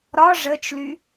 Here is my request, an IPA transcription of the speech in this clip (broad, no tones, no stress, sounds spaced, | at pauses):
ɾ ɒ ʐ ə t͡ʃ l y